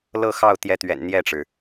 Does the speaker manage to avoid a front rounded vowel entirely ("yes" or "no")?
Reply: yes